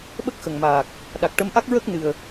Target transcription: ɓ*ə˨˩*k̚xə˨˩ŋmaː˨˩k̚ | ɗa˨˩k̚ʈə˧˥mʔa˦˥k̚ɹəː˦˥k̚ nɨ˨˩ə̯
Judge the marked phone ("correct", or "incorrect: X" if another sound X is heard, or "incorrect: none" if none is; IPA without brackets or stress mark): incorrect: ə˦˥